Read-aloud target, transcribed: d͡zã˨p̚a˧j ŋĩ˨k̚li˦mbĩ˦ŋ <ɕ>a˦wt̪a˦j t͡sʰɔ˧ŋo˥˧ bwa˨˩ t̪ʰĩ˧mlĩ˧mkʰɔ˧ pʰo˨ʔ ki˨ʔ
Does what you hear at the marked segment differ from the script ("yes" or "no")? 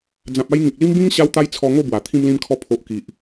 no